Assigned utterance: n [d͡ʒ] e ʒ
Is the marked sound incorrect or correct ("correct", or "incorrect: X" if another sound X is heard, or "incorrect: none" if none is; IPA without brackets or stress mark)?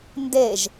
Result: incorrect: d